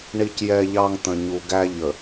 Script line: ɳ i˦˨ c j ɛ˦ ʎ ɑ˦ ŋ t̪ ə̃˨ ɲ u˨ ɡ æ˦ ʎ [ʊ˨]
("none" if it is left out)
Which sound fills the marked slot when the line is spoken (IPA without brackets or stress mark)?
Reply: ə˨